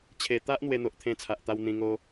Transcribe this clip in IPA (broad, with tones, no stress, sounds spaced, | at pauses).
t͡ɕʰ e˨˩ t̪ a˦ ʔ n̪ w e˧ n̪ o˨ ʔ t̪ʰ ẽ˧ t͡sʰ a˨ ʔ t̪ a˧ w n̪ ĩ˧ ŋ o˦